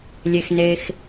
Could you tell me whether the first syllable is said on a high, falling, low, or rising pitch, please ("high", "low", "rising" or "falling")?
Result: low